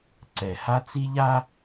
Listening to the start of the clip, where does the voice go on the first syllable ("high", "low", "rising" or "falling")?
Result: low